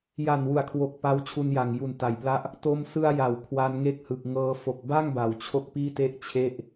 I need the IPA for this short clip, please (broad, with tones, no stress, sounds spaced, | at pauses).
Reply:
j a˨˩ n w u˩˦ a̯ kʰ w o˨˩ k̚ p a˦˥ w t͡ɕʰ u˧ n j a˨˩ ŋ j u˨˩ n t a˨˩ j p l a˥˩ ʔ | t o˧ m s ɯ˧ a̯ j a˩˦ w kʰ w a˧ n ŋ e˦˥ k̚ h ɯ˨˩ k̚ ŋ ɤː˧ f o˨˩ k̚ b a˥˩ ŋ b a˩˦ w t͡ɕʰ o˥˩ k̚ p iː˥˩ t e˥˩ ʔ t͡ɕʰ e˥˩ ʔ